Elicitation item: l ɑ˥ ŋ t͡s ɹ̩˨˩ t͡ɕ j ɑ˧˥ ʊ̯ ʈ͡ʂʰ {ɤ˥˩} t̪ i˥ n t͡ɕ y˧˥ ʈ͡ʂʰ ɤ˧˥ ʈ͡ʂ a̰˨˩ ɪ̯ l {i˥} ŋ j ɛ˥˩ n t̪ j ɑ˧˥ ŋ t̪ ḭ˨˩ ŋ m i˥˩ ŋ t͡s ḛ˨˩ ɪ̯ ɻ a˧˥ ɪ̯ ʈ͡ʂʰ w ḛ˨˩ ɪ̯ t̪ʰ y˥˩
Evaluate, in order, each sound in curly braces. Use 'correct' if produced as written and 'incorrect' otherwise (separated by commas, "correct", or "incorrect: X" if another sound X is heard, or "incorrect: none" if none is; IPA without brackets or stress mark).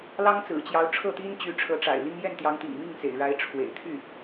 correct, correct